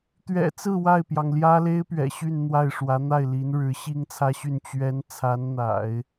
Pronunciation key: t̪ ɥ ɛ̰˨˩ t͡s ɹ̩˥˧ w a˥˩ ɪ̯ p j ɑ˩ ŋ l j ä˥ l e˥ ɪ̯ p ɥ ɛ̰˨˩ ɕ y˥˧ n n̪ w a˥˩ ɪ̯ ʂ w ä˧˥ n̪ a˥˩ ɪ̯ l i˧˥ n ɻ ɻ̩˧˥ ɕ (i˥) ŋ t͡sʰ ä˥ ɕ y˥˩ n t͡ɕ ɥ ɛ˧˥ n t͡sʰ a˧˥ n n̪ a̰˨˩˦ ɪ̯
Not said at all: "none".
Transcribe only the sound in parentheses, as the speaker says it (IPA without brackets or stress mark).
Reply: i˥